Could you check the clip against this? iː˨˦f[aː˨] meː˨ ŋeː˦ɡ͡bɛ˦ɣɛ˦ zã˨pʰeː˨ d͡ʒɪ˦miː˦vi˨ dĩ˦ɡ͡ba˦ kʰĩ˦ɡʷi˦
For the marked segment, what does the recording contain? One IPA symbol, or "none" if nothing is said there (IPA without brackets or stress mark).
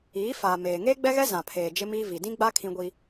aː˨